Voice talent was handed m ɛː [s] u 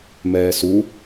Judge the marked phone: correct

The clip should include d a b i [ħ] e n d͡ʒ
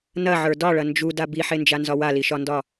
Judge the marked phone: correct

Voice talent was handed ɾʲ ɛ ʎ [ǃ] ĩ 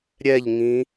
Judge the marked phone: incorrect: ŋ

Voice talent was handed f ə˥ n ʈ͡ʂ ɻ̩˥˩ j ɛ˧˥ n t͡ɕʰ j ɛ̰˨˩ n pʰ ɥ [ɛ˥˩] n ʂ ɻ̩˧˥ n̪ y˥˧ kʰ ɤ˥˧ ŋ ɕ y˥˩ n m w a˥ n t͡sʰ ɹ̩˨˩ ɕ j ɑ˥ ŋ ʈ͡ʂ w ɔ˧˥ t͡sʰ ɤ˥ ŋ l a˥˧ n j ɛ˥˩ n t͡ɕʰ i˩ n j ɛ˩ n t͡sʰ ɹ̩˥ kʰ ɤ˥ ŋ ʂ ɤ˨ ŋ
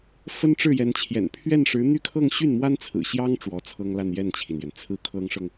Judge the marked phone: correct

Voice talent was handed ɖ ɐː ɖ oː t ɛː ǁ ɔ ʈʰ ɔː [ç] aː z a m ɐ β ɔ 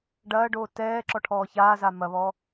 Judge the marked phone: correct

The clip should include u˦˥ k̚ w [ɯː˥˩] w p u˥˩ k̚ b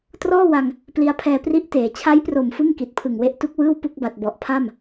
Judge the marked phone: correct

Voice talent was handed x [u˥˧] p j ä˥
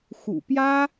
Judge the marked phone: incorrect: ṵ˨˩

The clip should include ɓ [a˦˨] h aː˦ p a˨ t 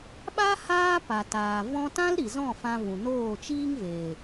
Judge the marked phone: incorrect: a˦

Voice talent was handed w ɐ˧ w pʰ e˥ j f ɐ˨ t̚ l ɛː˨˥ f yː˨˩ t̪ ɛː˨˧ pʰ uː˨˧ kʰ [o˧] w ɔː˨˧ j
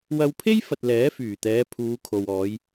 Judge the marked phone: incorrect: o˨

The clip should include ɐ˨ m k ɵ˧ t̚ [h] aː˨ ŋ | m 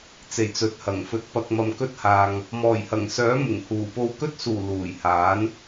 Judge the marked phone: correct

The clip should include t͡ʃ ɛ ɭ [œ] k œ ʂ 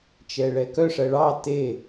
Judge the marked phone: incorrect: ɛ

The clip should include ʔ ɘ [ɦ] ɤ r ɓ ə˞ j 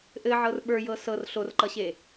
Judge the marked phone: incorrect: ʕ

